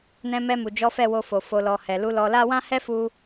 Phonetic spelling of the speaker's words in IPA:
n ɛ̃˧ m ɛ˧ m u˨ d͡ʒ ɔ˨˦ f ɛ˦˨ w o˧ f o˨ f o˨ l ɔ˨ h ɛ˨ l u˨˦ l ɔ˧ l a˦ w ã˦ h ɛ˦ f u˧

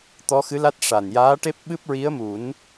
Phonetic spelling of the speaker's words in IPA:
t̪ ɔ˧˥ x ɨ˧˥ l a˦˥ t̚ ʂ a˨˩ n j aː˧˥ ʈ e˦˥ p̚ ɓ ɨ˦˥ p̚ ɹ i˧˥ ə̯ m u˨˩˦ n

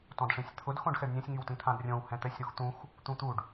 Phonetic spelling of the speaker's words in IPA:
t ɔ̃ d ʂ ĩ sʲ t̪ʰ ʊ d x õ ɖ x ɛ ɖ nʲ ɛ̃ sʲ ŋ y w t ĩ t̪ʰ ã d rʲ õ w h ɛ̃ t̪ ɛ sʲ ɾ u x t̪ ũ x | t̪ ũ t̪ u ɖ

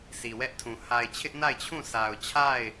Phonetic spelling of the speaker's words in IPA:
s i˨ w ɛ˦ ʔ tʰ ũ˨ h a˨ ɪ̯ t͡ɕʰ ɪ˦ ʔ n a˦˨ ɪ̯ t͡ɕʰ ũ˦˨ s a˨ ʊ̯ t͡ɕʰ a˦˨ ɪ̯

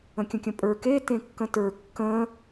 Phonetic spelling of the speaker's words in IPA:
ə̃ kʲ ə̃ kʲ ə̃ pʼ ə˞ k e t ẽ kː ə̃ t ə˞ kː ə̃

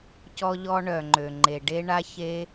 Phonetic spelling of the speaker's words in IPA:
c ɔ˧ ʎ ɔ˧ ɳ œ˩ ŋ͡ǃ ø˩ ŋ͡ǃ e˩ ɖ e˧ ɳ a˧ ç e˧

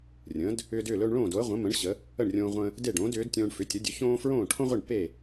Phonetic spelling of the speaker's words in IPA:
rʲ ə̃ː˩˥ d | ʏː˧ d ʏː˥˩ l ɵː˧ ɳ ɭ õː˥˩ d o˩˥ ə̯ ʁʷ ə̃˩˥ m ə̃˩˥ ɳ ɕ ə˩˥ | ə˥˩ ɳ rʲ õː˧ ʁʷ ə̃ː˧ | d e˥˩ ɖ õː˩˥ d ʏː˩˥ d tʲ õː˧ ɳ f ʏ˩˥ tʲ ə˩˥ dʲ ɵ˩˥ ç õː˥ f ɹ õː˥˩ ʈʰ õ˥ ʁʷ e˥˩ ɳ p e˥˩

